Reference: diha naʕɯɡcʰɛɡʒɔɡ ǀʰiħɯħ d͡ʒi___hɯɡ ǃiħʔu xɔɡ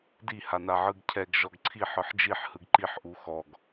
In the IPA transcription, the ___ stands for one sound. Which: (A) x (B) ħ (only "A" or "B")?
B